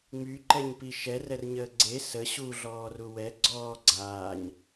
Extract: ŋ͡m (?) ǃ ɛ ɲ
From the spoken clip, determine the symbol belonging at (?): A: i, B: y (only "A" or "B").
B